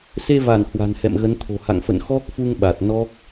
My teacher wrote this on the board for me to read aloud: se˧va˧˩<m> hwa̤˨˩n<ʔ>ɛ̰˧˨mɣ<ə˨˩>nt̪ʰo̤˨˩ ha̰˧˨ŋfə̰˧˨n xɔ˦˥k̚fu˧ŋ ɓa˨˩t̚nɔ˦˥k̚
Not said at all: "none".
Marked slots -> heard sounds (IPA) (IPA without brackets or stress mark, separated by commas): n, h, ə˨˦